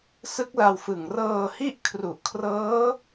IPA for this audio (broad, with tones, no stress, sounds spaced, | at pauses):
s ɯ˦˥ k̚ l a˧ w f ɯ˨˩ ŋ r ɤː˧ h i˥˩ ʔ kʰ r u˨˩ ʔ kʰ r ɤː˦˥